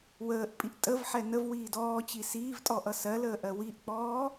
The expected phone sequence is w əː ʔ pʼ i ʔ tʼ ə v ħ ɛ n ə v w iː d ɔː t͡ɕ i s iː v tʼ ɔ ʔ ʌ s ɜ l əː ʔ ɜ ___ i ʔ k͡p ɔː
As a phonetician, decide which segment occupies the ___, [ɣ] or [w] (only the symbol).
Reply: w